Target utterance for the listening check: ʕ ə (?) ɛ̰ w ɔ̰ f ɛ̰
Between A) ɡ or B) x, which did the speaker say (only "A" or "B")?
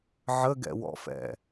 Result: A